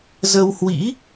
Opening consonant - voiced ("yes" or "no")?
yes